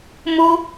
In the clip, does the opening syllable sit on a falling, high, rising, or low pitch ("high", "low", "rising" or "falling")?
high